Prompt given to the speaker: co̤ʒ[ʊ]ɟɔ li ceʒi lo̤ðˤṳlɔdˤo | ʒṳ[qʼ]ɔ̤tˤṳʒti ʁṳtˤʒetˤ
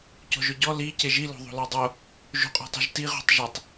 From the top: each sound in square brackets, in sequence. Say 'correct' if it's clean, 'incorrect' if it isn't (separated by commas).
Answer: correct, correct